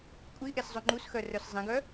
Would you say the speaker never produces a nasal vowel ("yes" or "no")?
no